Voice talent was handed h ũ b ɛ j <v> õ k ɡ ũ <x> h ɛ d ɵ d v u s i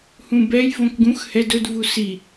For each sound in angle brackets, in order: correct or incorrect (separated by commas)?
correct, correct